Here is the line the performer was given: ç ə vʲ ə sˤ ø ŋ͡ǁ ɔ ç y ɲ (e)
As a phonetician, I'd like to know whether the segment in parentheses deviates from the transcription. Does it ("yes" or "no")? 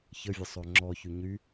yes